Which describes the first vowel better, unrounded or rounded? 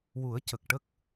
rounded